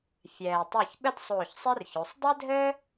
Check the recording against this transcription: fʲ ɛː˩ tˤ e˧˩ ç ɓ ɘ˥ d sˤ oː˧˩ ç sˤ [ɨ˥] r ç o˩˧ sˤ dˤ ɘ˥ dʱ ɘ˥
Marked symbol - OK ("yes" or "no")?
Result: no